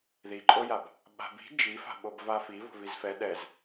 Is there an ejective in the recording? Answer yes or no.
yes